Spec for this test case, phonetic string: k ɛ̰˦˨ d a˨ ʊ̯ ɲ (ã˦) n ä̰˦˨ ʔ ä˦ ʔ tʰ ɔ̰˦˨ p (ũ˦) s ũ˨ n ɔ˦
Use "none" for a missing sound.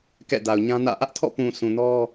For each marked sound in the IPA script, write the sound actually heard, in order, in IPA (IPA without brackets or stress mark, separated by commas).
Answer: ã˦, ũ˨